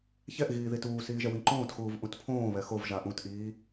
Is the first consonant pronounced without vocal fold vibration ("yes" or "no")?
yes